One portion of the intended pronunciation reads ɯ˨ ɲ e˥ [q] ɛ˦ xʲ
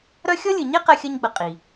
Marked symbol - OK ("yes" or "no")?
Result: yes